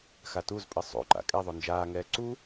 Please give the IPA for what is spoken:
xatuzpʼɘ sˤo̰ ǃa̰kʼɛðˤo nd͡ʒaːŋɛː ǀu

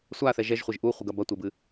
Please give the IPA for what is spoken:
sʷaθɛ ʒɛʒχʷeʒ ʔuχʷɘɡɐ bɐtʷɛbɨ

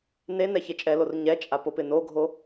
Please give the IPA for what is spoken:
nenɛ çet͡ʃʼɛlor ɲɛt͡ʃʼa popɪnoɡʱo

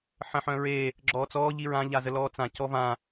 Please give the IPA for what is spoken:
ħə̃ħœ̃ɹe | ɡ͡ǁɔːt͡sɔː ʎiɹã ʎazəlɔːt͡sã cɔvã

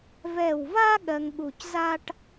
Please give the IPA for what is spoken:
vɛ˧˩wva˥ ɠɜ˧ŋɠu˧˩c za˥ʈ

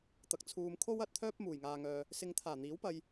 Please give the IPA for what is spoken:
t̪ɐ˨k̚ t͡sʰuː˨mkʰo˥wɐ˨˥t̚t̪ʰœː˥p̚ muː˨˩jŋaː˧ŋœː˧ | sɪ˨˧ŋt̪ʰaː˨˩n̪iː˨˥w pɐ˧j

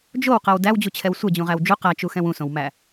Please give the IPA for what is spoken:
d͡ʒowqɛw dæwd͡ʑut͡ɕʰɛw sʷɛd͡ʑũʁæw d͡ʒu qæt͡ʃuxɛ̃w ũsõwmæ

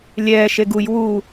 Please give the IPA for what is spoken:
lʲɛːʃeɡ uj wu

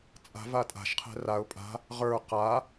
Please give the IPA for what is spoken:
t͡sʼa̤ vatʼa̤ʃqʰɛ̤ raʊ̯ pʼa̤ | ʁə˞ qa

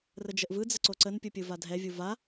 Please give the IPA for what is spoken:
rəd͡ʒəʔvɯd͡zə ǀoǀənpʲu pʲɯvadʱɛvʲu va

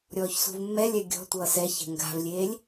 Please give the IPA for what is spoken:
ɾʲɔːçsṳvmːɛlʲɛ ɡʲɔ̤ tʷʌːsɛçɛ̤ ŋɡa̤vlʲeːlʲ

